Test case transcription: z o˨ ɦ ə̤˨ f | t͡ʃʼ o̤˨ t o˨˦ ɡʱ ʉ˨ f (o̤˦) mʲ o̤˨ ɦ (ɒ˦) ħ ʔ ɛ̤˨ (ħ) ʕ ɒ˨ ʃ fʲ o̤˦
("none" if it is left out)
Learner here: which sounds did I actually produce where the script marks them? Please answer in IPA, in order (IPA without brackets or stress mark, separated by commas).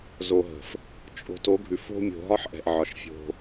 o̤˦, ɒ˦, ʔ